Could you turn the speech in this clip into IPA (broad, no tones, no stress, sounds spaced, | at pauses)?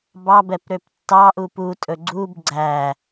b ɑ b ɛ p ɾ ø p tː ɑ ʔ u p u tʼ ɵ ɡ͡ǀ u b ɡ͡ǀ æ